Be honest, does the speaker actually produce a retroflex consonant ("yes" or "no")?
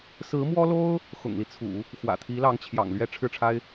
yes